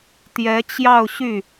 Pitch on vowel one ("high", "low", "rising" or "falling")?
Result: rising